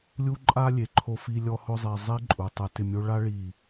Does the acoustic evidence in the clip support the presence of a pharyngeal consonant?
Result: no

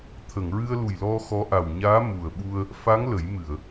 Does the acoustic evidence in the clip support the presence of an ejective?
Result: no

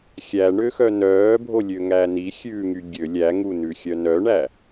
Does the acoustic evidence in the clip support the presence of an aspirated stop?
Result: no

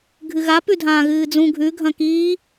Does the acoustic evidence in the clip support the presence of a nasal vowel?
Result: yes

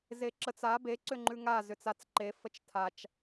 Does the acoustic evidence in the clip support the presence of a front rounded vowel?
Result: yes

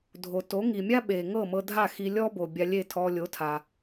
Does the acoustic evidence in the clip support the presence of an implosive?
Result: yes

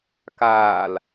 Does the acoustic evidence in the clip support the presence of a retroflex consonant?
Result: no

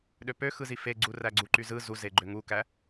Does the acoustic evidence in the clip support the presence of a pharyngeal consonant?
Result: no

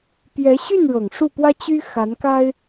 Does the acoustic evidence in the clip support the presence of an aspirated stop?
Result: no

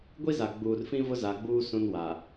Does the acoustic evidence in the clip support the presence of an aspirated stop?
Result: no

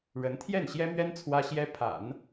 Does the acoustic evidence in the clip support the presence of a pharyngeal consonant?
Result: no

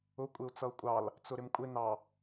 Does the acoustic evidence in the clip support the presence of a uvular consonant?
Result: no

